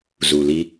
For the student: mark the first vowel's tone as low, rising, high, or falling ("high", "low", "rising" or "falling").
low